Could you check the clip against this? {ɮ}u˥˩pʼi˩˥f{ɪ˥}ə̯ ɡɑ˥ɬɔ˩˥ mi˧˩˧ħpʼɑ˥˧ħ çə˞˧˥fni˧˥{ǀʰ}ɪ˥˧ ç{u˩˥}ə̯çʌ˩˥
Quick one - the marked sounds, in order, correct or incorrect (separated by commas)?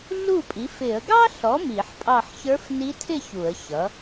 correct, incorrect, incorrect, incorrect